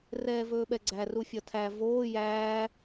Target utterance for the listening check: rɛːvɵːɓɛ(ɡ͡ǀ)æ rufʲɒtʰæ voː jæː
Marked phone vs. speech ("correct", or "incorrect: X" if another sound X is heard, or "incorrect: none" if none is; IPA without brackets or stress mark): correct